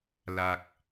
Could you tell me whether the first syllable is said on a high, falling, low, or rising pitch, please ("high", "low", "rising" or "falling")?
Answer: high